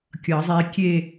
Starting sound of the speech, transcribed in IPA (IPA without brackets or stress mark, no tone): kʲ